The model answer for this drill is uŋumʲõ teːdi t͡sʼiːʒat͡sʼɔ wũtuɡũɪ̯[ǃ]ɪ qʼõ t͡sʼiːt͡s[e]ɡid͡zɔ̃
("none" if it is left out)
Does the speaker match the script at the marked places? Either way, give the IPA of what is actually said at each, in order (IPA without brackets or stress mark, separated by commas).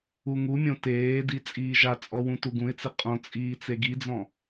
t͡s, e